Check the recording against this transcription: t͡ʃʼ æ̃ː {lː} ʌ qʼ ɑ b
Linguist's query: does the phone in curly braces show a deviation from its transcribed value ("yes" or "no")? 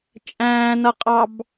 yes